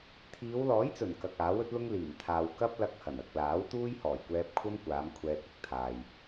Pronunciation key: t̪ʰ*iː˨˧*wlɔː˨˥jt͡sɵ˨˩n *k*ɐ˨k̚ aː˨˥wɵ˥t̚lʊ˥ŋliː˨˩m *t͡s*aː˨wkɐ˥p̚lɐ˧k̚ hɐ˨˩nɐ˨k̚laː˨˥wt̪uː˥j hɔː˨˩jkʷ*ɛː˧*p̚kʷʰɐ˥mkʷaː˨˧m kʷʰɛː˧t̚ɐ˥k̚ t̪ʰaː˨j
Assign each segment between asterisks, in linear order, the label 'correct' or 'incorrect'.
correct, correct, incorrect: t̪ʰ, correct

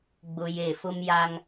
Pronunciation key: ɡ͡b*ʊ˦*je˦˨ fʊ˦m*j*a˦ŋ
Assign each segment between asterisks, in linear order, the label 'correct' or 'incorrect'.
correct, correct

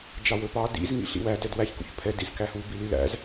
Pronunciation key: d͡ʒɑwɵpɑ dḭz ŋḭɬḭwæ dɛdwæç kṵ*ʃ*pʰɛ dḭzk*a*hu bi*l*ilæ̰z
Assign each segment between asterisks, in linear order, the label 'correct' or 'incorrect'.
incorrect: ç, incorrect: æ, correct

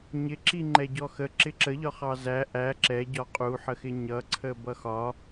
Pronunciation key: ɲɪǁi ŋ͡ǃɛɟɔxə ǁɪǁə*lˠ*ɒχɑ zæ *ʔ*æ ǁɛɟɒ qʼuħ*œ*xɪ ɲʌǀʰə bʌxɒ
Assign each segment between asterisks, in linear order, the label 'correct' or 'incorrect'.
incorrect: ʎ, correct, incorrect: ə

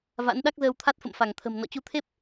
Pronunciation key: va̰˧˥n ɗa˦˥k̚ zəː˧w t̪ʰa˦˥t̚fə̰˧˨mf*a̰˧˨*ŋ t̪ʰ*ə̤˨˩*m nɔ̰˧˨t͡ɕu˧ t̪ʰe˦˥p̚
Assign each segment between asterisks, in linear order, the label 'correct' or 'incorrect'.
incorrect: a˧˩, correct

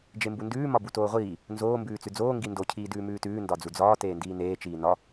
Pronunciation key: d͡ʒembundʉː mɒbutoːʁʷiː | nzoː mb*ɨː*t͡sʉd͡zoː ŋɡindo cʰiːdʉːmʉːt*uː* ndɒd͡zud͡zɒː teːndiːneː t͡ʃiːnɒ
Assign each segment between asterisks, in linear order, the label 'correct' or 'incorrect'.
incorrect: ʉː, incorrect: ʉː

